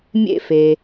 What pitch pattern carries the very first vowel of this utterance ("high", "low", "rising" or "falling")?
high